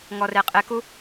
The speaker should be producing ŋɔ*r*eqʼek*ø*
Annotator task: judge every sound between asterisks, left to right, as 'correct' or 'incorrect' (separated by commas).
correct, incorrect